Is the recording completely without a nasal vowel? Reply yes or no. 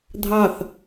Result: yes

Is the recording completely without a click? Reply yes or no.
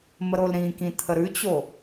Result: yes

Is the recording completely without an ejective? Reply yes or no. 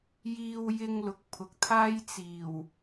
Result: yes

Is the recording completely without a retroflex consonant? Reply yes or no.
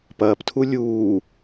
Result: yes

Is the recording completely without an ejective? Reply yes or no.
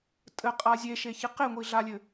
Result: no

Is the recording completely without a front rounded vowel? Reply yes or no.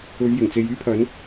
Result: no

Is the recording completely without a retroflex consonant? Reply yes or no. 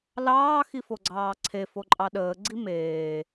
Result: yes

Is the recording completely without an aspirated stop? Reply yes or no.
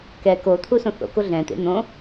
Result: no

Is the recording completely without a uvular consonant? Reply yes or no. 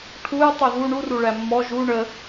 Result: yes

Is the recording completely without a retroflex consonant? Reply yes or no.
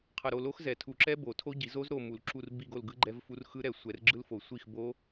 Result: yes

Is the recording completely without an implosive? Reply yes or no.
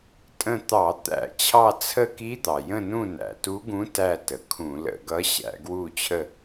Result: yes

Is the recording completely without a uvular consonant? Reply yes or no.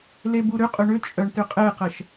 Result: no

